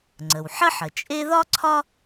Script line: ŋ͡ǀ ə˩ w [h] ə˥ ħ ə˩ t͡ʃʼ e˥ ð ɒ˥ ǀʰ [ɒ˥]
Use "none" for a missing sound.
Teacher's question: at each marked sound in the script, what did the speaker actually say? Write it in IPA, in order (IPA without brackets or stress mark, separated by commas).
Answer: ħ, ɒ˥